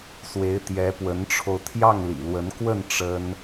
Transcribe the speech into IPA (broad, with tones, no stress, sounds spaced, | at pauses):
s w e˧˥ ɪ̯ t̪ j ɛ˧˥ p w ə˧˥ n ʈ͡ʂʰ o˧ ʊ̯ t̪ʰ j ɑ˥˩ ŋ l ḭ˨˩ l w ə˧˥ n k w ə˥˩ n ʈ͡ʂ ə˥ n